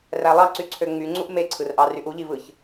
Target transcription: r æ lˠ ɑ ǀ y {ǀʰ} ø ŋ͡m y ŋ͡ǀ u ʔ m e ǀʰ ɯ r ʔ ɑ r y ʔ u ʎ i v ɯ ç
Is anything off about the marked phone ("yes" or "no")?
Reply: no